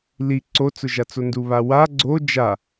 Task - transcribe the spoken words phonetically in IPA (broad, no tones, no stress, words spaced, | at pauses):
li ǀot͡sʊʒat͡so nduβawa ɡ͡ǀo d͡ʒa